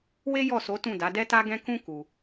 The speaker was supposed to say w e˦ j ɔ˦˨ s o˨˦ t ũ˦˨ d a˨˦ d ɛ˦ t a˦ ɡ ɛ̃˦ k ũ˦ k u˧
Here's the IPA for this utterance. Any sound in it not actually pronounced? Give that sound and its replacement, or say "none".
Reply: none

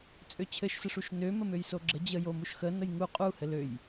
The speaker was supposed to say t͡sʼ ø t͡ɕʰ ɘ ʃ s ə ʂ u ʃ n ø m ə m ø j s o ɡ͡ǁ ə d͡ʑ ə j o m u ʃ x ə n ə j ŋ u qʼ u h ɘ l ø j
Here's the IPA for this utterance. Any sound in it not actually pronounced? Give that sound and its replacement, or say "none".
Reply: none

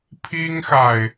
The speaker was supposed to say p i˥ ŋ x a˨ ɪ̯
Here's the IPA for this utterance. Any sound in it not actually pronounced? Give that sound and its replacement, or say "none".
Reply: p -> pʰ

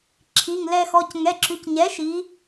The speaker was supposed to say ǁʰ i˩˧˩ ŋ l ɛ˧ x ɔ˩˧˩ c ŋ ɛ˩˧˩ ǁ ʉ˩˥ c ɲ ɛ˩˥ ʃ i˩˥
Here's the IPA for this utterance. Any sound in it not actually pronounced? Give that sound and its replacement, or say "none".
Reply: ʉ˩˥ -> ʉ˩˧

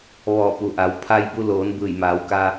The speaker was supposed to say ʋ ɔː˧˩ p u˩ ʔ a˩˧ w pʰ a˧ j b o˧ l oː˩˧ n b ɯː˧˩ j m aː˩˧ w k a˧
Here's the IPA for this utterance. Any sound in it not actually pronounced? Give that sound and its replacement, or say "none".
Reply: o˧ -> u˧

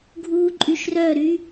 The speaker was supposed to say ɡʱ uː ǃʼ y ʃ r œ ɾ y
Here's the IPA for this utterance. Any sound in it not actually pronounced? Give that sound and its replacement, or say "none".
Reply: none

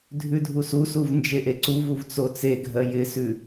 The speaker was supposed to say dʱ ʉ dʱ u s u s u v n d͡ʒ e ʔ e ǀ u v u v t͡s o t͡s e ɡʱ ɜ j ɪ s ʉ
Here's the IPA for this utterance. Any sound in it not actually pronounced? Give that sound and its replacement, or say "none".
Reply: none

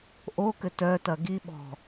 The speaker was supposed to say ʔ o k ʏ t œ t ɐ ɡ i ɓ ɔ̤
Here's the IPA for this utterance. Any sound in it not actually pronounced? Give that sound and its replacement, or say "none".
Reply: none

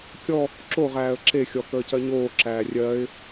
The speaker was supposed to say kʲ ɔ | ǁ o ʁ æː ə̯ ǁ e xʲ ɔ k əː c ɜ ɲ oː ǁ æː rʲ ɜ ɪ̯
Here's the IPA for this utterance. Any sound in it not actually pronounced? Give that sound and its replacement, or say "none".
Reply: none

